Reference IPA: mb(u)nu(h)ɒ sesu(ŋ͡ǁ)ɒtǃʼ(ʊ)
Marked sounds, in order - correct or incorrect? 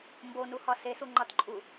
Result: incorrect: o, correct, incorrect: ŋ͡ǃ, incorrect: u

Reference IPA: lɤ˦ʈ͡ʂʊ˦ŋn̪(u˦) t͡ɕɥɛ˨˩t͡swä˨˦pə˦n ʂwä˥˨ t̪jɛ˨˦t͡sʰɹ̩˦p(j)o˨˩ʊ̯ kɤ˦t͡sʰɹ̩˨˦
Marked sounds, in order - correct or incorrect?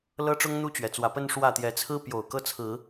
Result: correct, correct

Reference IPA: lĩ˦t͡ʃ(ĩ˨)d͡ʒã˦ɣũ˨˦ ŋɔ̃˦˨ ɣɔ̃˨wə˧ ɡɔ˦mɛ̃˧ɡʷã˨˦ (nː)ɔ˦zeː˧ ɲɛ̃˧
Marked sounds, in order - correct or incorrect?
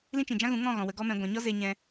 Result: correct, incorrect: ɲ

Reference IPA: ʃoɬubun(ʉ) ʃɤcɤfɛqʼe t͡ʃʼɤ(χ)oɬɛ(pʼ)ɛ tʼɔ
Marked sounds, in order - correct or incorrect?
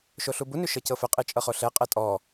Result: correct, correct, incorrect: qʼ

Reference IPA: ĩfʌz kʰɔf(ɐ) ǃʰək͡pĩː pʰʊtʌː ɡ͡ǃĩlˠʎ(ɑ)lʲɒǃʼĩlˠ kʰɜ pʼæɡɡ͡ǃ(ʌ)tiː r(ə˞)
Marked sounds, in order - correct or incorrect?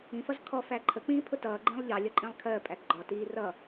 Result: incorrect: æ, correct, incorrect: ɒ, incorrect: ʌ

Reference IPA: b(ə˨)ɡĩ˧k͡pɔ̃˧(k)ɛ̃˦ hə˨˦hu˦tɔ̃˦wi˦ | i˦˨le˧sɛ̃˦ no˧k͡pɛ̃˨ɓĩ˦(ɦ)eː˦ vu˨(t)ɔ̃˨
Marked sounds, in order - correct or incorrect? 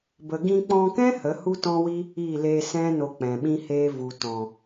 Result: correct, correct, incorrect: h, correct

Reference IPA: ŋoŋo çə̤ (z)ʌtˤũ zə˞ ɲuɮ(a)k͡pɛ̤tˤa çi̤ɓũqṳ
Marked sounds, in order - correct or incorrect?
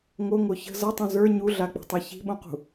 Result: correct, correct

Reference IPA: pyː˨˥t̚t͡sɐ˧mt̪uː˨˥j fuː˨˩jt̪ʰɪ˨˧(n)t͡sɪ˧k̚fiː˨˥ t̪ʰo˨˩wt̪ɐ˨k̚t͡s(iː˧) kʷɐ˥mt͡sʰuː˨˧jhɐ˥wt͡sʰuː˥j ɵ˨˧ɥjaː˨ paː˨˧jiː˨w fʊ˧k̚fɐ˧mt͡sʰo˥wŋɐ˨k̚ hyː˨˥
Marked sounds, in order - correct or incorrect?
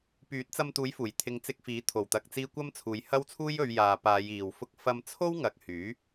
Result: incorrect: ŋ, correct

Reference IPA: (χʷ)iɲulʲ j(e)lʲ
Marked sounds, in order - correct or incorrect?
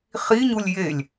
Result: incorrect: χ, correct

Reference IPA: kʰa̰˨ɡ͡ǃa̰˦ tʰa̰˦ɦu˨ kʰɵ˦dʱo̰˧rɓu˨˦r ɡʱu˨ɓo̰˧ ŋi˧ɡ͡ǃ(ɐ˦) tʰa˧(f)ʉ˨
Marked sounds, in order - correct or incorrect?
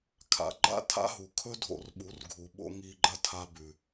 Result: correct, incorrect: b

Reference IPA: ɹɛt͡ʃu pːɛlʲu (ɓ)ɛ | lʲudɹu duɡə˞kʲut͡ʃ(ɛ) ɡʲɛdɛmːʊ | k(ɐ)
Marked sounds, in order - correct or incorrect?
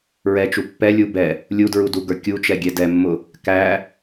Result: incorrect: b, correct, incorrect: æ

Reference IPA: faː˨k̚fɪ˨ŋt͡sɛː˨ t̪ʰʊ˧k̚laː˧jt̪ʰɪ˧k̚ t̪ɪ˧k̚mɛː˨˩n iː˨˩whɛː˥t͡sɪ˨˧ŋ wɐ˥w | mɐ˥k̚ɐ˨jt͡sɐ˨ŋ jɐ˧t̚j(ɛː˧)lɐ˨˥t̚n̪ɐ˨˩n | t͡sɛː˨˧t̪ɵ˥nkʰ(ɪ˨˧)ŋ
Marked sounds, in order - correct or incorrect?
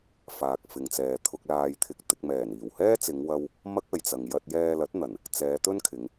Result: correct, correct

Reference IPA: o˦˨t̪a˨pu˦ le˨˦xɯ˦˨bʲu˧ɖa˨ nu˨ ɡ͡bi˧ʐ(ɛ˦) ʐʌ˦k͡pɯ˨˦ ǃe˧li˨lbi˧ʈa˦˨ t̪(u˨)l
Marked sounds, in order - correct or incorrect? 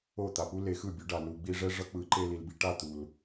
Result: correct, correct

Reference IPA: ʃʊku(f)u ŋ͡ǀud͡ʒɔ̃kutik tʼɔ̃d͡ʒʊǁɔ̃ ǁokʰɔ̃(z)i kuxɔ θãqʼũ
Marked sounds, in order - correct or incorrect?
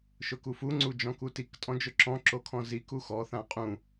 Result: correct, correct

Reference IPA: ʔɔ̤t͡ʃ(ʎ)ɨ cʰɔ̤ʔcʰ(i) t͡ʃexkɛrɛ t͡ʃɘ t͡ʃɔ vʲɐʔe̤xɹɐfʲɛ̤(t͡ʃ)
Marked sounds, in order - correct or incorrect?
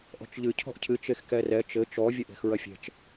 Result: correct, incorrect: ɨ, correct

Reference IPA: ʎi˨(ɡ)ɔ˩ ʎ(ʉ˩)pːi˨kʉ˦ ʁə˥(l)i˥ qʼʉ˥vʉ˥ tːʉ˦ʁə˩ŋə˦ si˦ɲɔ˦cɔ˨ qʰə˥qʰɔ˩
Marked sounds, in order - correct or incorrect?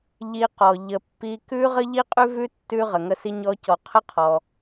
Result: incorrect: q, incorrect: ə˩, incorrect: ʎ

